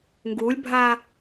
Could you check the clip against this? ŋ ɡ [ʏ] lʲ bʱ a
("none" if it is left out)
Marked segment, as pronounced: u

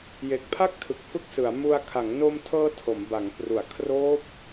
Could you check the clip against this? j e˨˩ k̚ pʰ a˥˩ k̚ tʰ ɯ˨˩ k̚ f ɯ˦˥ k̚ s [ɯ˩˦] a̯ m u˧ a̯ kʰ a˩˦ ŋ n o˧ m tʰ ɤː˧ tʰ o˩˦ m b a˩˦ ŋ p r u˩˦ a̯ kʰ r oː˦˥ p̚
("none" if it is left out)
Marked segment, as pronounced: ɯ˩˦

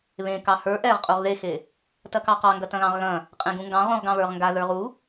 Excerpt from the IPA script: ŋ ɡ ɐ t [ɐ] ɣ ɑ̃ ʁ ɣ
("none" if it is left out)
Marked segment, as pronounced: ɐ̃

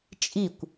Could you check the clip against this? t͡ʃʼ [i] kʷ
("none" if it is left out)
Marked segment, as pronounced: i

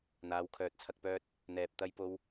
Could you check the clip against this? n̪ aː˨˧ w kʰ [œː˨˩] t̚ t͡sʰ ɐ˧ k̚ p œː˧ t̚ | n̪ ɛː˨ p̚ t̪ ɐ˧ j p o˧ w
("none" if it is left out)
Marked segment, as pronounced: œː˨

